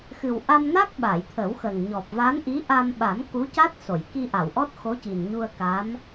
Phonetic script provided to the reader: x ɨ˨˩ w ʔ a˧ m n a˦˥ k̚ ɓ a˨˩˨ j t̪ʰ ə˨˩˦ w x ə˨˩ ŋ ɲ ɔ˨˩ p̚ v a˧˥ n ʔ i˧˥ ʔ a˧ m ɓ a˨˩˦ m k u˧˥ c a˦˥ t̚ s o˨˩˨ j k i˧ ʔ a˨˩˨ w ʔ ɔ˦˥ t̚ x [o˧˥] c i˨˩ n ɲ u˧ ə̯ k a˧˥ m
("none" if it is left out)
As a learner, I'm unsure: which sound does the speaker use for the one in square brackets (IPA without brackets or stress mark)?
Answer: o˧˥